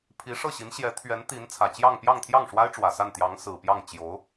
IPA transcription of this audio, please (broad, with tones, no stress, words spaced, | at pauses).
pʰi˧˥ʂɤ˥˩ɕi˧˥n ɕjɛ˧˥t̪ʰɥɛ˧˥n t̪i˧˥n t͡sʰä˨˩t͡ɕjɑ˥˧ŋ pjɑ˥˧ŋt̪ʰjɑ˥˩ŋʂwa˥ɪ̯ʈ͡ʂwä˨˩ sa˥˩nt̪jɑ˧˥ŋsɹ̩˨˩ pjɑ˥˩ŋ t͡ɕjo˧˥ʊ̯